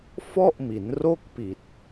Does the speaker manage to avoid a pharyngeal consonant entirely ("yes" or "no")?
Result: yes